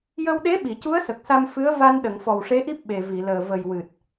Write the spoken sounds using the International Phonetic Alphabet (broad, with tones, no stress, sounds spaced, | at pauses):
j ə˧ w ɗ e˧˥ ɓ i˨˩˨ c u˧˥ ə̯ s ə˨˩ k̚ s a˧ m f ɨ˧˥ ə̯ v a˧ n ɗ ə˨˩˨ ŋ f ɔ˨˩ w ʂ e˧˥ ʔ i˦˥ p̚ ɓ e˨˩ v i˨˩˨ l əː˨˩ v ə˨˩ j w ɨ˨˩ t̚